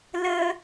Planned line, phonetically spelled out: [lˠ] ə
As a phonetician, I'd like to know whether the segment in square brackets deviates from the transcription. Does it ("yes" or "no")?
yes